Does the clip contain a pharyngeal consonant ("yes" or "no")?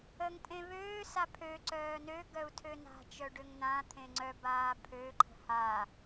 no